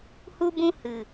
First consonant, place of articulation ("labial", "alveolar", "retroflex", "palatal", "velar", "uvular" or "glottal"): glottal